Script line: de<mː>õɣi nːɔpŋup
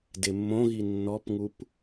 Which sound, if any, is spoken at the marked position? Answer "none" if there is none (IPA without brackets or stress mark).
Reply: mː